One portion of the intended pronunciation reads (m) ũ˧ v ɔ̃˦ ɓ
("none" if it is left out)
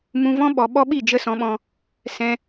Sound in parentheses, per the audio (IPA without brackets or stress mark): m